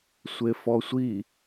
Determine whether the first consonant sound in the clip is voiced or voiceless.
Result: voiceless